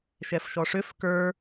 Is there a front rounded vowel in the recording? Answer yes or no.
yes